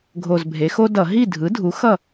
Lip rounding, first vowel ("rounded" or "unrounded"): rounded